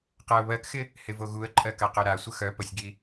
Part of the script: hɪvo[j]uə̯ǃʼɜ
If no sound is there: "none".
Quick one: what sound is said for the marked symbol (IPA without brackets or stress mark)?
ɣ